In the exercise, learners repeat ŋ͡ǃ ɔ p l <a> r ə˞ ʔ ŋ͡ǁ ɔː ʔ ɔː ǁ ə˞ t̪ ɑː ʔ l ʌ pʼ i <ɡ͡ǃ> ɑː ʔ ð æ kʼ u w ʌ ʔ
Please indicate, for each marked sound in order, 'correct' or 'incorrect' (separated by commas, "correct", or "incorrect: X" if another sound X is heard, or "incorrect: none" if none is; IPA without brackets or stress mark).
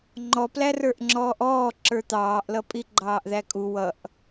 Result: incorrect: æ, correct